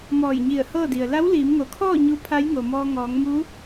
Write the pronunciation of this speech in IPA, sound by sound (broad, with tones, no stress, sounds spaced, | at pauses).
m ɔː˧˩ j ɲ i˧˩ ə̯ h ɤː˥˨ d i˩ ə̯ l a˧˥ w l iː˩˧ m ŋ o˩ kʰ ɔː˥˨ ɲ u˧˥ pʰ a˧˥ j ŋ o˩ m ɔː˧ ŋ ɔː˩˧ ŋ m u˧˥